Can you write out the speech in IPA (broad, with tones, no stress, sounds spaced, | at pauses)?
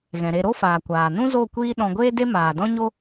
ɣ ɛ̃˨ ɾ e˧ ɾ o˦ f aː˨ kʷ aː˨ n ũ˦ z o˦˨ kʷ iː˦ ɗ ɔ̃˧ ɡʷ eː˦ d e˦ m aː˨ d ɔ̃˦ ɲ o˦